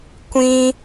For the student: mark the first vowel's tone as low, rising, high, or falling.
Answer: high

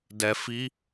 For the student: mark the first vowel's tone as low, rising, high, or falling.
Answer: low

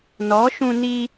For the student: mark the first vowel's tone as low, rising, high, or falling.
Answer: rising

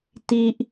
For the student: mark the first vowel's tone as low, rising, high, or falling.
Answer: high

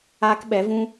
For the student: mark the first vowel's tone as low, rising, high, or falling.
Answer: high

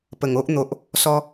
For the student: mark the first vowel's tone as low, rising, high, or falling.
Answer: low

